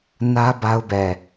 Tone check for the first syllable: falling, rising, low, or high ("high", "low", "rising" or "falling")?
high